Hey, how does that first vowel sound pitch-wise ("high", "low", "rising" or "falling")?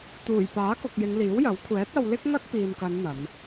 low